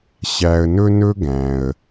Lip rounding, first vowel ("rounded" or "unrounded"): unrounded